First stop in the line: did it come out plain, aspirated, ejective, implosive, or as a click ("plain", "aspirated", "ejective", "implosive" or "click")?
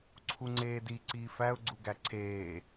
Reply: click